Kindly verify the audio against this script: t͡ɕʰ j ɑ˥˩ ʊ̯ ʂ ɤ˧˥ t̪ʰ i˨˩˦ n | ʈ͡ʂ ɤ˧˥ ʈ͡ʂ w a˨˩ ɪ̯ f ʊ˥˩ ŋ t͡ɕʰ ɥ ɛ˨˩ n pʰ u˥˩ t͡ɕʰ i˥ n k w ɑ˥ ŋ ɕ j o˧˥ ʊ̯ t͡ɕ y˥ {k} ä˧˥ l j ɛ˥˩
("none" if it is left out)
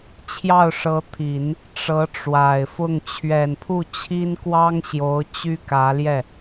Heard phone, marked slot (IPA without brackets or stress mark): k